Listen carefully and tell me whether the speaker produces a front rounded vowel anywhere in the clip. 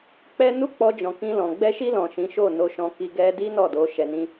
no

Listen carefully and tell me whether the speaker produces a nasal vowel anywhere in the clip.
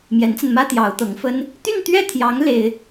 no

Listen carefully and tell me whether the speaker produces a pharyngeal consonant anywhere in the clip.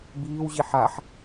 yes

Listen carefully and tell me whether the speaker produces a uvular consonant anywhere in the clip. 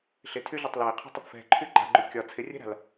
yes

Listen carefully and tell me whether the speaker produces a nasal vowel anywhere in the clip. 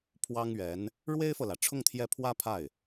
no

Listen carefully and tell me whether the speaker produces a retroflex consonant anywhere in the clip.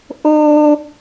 no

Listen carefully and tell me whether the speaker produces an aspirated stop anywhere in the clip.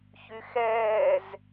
no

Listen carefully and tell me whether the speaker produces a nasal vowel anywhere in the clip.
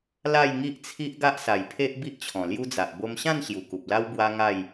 yes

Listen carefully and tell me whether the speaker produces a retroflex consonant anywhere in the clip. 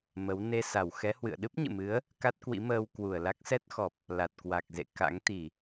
no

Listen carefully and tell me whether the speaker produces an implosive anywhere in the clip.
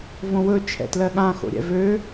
yes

